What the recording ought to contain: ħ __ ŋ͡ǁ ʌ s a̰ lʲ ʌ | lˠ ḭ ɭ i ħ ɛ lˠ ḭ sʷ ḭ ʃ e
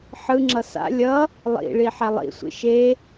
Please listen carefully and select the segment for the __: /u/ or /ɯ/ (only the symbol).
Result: ɯ